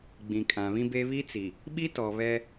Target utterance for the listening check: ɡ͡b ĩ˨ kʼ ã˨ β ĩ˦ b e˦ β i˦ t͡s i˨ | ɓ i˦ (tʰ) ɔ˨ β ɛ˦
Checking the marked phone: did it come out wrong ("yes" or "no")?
yes